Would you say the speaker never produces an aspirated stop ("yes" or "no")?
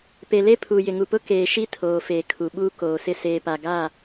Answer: no